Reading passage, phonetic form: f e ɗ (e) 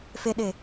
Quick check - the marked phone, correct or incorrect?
correct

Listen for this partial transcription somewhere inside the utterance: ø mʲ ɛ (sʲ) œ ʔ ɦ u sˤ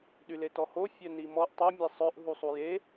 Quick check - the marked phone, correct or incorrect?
incorrect: sˤ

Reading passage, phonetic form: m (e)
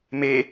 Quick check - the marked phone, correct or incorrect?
correct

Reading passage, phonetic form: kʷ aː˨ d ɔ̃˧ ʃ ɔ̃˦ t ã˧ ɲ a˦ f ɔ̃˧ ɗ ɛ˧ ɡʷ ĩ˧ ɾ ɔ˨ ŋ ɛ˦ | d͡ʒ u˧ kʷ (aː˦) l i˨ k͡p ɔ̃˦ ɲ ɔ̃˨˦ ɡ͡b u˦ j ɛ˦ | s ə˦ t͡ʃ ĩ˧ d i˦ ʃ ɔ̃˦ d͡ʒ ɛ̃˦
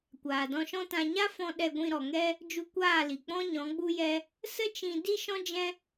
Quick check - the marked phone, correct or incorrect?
incorrect: aː˦˨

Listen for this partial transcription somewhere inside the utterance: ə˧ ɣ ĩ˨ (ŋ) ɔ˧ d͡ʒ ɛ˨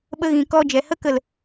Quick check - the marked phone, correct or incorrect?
incorrect: k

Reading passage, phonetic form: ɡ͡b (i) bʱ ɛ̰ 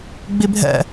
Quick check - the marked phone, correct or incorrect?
correct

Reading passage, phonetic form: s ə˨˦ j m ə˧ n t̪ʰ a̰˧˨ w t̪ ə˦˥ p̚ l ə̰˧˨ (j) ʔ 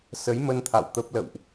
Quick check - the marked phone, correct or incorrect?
incorrect: w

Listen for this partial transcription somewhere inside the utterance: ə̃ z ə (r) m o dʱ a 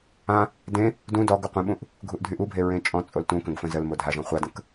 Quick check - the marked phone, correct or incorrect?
incorrect: l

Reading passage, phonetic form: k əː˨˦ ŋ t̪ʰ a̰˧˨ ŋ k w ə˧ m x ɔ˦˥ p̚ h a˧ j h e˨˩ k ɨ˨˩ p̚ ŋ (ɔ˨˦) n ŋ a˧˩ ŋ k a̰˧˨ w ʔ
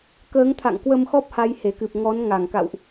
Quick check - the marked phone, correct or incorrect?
correct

